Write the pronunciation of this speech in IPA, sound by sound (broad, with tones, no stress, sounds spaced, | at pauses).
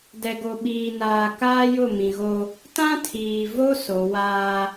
d ɛ˨ ɡ o˨ ɓ iː˨ n aː˨ k aː˦ j ʊ˦˨ m ĩ˨ ɣ o˦ | t ã˦ tʰ iː˨ v o˦ s o˨˦ w aː˦